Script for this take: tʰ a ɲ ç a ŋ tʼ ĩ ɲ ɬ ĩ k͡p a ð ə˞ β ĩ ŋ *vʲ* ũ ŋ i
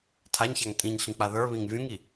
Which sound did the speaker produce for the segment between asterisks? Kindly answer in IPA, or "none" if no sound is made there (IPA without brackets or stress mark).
vʲ